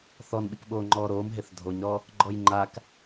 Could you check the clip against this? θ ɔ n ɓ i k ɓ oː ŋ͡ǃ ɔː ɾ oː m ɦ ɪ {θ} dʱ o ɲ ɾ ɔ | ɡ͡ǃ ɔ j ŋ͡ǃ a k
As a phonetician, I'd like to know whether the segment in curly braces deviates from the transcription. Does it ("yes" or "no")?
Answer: no